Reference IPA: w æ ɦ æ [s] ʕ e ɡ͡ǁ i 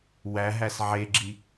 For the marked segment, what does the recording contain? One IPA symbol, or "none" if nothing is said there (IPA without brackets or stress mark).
s